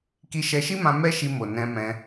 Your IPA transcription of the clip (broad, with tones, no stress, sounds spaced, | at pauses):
k i˧ ʃ ɛ˧ ʃ i˦ m ã˧ m ɛ˦ ʃ i˧ m o˨ n ɛ̃˧ m ɛ̃˧